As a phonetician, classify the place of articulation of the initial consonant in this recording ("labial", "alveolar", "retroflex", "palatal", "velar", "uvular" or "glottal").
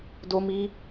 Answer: alveolar